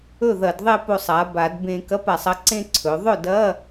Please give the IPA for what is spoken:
ɵ˥˩ðɐ˧˩˧dðˤe˥˧ po˧sˤa˩˧ ba˧˩˧d bẽ˧ kɐ˧˥˧pa˩˧sˤɐ˥˧ǀẽ˥˧ ǀʰɵ˩˧ ðˤɵ˥˩dɐ˧˥˧

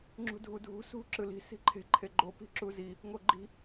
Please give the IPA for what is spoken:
ŋ͡ǁṳdʱudʱṳ sṳ ǁɯli̤ si̤ǃʰe̤ ǃʰeɡ͡ǃo pi̤ǁuzi | ŋoɡ͡ǃi̤

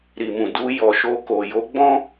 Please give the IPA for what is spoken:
ɾi˨mũ˨ du˧ jɔ˨ʃo˧ko˨ jo˨˦ɡ͡bɔ̃˦

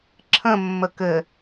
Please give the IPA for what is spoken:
ǁʰə̃ mːəkɘ

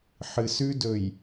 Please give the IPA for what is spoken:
ħɨ˨sʉ˦dɵ˨j

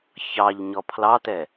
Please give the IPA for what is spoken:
çɑʎ ɲɔpʰlɑtɛ

